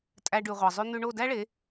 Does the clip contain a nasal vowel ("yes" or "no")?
no